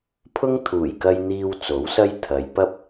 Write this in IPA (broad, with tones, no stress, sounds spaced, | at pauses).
pʰ ʊ˥ ŋ t̪ʰ uː˨˩ j k ɐ˧ j n̪ iː˧ w t͡s o˨˥ w s ɐ˥ j t̪ʰ ɐ˨˧ j p ɐ˥ p̚